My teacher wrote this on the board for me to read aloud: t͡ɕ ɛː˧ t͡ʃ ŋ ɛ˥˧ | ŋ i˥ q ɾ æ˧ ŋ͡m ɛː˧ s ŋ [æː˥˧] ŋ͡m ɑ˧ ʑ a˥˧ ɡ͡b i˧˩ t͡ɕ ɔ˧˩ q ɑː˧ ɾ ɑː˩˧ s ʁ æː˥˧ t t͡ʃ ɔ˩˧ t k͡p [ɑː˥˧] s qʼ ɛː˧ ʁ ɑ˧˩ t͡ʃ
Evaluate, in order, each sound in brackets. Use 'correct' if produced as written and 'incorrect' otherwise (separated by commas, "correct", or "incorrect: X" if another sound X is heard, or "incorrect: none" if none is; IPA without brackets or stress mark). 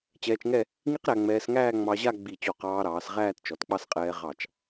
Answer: correct, incorrect: ɑ˥˧